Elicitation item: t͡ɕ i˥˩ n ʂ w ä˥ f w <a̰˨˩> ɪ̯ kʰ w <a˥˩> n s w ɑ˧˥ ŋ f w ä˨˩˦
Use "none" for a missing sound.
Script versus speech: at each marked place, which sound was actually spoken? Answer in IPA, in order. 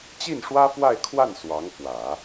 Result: a˥˧, a˥˩

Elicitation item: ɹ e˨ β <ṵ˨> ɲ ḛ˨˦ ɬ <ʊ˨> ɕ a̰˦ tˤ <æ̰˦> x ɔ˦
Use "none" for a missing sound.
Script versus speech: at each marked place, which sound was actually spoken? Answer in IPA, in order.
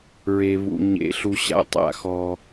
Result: ṵ˨, u˨, a̰˦

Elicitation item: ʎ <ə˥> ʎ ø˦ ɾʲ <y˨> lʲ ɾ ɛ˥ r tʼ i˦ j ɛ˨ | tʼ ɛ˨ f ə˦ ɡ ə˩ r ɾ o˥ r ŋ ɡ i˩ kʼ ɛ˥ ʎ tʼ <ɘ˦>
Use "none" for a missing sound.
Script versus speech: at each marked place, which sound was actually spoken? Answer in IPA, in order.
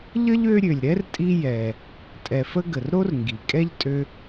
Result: ə˥, ø˨, ø˦

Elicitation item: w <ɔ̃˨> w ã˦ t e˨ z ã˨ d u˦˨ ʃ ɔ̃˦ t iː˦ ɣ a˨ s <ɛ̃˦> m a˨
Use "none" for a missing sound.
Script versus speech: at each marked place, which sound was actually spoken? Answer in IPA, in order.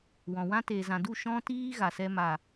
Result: ɔ̃˨, ɛ˦

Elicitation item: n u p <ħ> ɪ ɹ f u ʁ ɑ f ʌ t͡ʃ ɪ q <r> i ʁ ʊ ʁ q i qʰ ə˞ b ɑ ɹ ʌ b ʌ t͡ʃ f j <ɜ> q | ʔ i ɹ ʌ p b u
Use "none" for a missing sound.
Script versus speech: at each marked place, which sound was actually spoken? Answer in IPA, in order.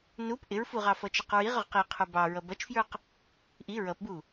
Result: ʔ, ɹ, ə˞

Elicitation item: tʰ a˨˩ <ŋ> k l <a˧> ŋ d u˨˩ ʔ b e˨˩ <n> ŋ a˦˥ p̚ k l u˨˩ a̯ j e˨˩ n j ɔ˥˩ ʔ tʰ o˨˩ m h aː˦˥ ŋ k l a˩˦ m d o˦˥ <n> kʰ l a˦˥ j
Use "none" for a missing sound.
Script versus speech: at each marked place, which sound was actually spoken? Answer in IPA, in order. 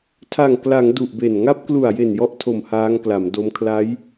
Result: ŋ, a˩˦, n, m

